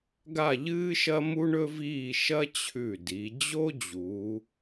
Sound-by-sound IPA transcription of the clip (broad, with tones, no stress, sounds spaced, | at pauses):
ɡ a˥˧ ʎ ɨː˥ ʃ ɐ˥ m u˥ ɳ ɵ˥ v iː˥˧ ʃ ɐ˥ t͡ɕʰ ʉ˧˩ d i˩˧ d͡ʑ o˥ d͡ʑ uː˩˧